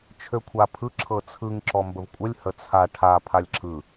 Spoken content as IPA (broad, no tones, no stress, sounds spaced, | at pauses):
t͡ʃʰ ø kʷʰ a pʰ ɯ ǁʰ ɤ t͡sʰ ɯ ŋ ǁ ɔ m b ə v kʷʼ ə lʲ h ə t͡sʰ a ʈʰ a pʰ a lʲ ǁʰ ɯ